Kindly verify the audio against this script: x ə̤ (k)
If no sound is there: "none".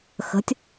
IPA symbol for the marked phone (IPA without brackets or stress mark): tʲ